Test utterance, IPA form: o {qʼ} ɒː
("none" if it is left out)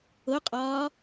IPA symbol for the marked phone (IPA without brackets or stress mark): qʼ